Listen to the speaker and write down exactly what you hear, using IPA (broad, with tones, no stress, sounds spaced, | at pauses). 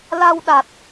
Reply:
l a˧ w ɗ a˨˩ t̚